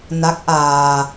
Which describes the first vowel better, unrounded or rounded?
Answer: unrounded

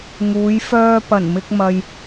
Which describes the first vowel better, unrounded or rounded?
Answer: rounded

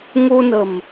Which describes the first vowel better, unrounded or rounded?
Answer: rounded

